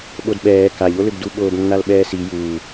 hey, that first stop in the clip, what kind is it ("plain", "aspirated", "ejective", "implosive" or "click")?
implosive